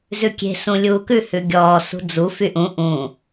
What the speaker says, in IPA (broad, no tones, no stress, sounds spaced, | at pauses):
z ʉ kʲ e̤ s ũ lʲ uː k ʉ h ʉ ɡʲ ɔː s ṳ d͡z u f y ʔ ũ ʔ ũ